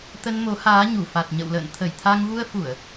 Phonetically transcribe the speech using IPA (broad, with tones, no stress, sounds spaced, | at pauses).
t̪ ə˧ n m o˨˦ h aː˨˦ ɲ u˧˩ f a˨˩ t̚ ɲ ə̰˧˨ w l ə̰ː˧˨ n t̪ʰ ə˧˩ j t̪ʰ a˧ ŋ v u˧ ə̯ f u˧˩˨ ə̯